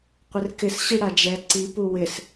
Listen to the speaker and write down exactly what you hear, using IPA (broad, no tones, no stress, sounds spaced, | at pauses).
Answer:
qʷ ɪ r k ɪ s ɕ i ɽ a d͡ʒ ɛ ǀ i p u w ɪ s